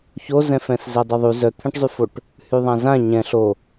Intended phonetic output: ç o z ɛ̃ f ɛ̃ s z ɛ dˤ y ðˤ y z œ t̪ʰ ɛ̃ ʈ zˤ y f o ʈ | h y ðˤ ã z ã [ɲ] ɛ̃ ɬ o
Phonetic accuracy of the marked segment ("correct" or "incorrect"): correct